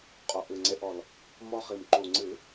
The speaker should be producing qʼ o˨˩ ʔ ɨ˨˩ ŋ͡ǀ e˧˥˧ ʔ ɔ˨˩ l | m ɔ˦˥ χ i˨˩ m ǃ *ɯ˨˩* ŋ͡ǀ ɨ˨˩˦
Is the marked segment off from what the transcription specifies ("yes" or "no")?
yes